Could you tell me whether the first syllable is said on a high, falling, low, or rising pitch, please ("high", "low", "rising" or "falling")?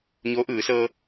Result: rising